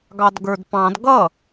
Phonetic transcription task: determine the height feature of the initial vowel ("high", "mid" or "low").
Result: low